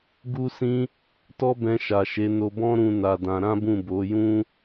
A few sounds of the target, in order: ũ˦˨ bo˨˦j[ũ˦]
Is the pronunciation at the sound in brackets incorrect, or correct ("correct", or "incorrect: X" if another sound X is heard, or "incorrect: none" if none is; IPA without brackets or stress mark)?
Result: correct